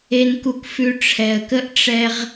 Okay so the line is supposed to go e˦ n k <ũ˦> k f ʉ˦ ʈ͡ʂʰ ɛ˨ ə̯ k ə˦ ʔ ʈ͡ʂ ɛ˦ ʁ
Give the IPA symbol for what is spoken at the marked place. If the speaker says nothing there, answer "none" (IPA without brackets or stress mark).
u˦